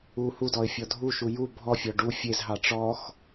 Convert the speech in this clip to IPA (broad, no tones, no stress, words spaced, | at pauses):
u hudɔɪ̯ fʲɔdʱuʃu ju bʱɔfʲɔ ɖu fʲezɦɑ ʈ͡ʂɔx